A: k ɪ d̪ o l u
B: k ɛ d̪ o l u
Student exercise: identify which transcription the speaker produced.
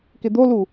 A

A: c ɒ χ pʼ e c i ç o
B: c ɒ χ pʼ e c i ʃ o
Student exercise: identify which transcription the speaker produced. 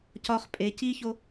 A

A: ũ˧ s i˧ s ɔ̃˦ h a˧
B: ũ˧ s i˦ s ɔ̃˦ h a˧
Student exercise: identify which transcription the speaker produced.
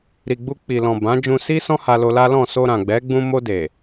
B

